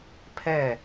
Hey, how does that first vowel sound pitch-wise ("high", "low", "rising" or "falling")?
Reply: falling